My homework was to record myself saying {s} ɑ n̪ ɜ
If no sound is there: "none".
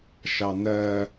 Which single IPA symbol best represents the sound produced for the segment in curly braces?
ʃ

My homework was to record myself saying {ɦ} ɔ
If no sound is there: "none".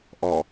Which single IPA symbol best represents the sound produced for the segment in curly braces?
ʔ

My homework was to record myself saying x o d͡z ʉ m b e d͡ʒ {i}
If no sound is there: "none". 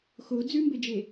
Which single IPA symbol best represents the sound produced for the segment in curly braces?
e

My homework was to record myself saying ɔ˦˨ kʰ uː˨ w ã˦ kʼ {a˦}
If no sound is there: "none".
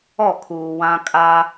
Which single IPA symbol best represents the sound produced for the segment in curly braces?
a˦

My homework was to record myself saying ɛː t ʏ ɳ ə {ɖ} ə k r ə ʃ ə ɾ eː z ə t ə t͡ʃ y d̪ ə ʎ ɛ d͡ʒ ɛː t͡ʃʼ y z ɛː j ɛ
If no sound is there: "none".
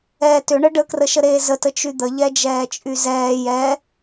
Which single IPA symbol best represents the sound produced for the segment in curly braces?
ɖ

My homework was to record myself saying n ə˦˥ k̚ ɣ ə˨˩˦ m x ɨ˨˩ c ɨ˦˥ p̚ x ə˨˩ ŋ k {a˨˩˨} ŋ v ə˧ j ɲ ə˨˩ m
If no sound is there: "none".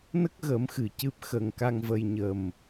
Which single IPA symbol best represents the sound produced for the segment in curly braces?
a˧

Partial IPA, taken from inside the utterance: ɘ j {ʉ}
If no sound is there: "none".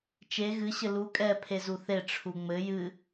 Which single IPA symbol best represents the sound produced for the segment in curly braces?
ɨ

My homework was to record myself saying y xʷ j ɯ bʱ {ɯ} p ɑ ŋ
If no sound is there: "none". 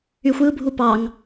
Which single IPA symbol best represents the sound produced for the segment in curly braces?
u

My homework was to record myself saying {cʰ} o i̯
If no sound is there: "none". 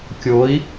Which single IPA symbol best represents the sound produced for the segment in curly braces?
kʲ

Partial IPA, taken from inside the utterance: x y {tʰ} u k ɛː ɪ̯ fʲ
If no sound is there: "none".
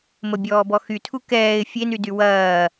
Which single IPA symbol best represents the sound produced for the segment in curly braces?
tʰ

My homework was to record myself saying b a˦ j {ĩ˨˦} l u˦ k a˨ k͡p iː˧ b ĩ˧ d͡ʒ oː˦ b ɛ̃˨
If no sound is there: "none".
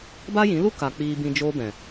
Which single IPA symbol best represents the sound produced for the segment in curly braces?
ĩ˨˦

